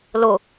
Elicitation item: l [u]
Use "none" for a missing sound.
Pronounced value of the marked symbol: ʊ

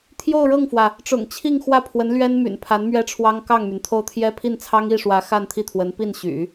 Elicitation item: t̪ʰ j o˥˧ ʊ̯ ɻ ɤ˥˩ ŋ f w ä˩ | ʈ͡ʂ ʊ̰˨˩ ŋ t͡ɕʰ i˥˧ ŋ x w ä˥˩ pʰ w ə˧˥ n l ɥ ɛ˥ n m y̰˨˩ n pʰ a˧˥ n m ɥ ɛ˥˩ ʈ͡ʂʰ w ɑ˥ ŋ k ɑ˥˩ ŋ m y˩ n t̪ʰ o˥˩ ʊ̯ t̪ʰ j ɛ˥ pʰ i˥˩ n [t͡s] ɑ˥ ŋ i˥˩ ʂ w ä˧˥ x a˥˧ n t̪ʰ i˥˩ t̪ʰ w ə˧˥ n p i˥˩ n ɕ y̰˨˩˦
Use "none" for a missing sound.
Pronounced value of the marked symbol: t͡sʰ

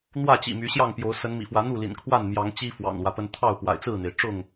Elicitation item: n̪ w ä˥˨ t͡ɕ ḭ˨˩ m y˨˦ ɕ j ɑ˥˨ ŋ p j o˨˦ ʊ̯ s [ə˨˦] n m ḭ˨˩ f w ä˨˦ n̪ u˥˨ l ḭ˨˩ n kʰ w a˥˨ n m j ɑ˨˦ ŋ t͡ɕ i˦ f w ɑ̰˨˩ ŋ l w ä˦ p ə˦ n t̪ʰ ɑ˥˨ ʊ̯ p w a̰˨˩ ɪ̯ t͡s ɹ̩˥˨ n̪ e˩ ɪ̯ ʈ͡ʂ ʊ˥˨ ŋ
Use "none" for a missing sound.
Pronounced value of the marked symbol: ə˨˦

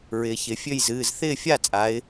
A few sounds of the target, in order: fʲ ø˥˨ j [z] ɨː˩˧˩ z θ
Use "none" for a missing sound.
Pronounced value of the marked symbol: z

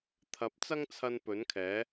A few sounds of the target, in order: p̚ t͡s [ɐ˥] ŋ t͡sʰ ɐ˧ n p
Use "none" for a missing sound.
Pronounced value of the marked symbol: ɐ˥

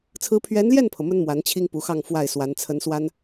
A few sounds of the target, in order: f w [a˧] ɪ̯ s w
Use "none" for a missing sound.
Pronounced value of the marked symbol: a˥˩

